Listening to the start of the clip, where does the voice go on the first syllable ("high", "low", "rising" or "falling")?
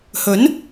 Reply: rising